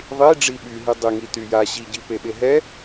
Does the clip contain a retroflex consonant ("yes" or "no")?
yes